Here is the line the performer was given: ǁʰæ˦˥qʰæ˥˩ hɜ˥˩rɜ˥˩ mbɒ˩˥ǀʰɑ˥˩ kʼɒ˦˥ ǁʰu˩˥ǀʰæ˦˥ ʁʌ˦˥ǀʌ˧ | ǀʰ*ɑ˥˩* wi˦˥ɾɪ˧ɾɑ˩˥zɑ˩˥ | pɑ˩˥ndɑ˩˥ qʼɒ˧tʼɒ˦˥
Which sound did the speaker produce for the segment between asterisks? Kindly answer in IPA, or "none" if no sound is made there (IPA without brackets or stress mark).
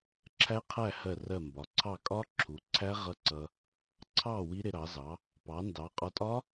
ɑ˥˩